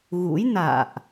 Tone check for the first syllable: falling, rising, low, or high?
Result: rising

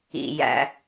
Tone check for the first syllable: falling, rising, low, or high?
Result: low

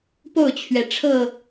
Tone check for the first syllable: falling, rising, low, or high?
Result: falling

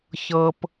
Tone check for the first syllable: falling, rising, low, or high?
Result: high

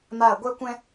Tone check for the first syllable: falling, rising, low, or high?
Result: falling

